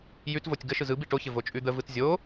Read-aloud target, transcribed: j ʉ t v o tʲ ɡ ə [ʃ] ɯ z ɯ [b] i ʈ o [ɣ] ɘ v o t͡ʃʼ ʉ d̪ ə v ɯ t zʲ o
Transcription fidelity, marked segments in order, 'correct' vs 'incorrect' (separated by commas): correct, correct, incorrect